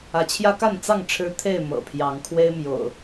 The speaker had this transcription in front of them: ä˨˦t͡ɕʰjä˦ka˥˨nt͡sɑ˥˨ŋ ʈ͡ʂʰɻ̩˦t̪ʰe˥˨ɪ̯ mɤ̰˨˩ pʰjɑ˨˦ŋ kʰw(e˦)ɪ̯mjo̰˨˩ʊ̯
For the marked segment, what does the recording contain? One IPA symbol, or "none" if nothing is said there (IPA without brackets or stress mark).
e˦